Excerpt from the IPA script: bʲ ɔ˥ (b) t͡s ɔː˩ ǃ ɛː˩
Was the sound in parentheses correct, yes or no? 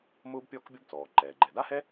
yes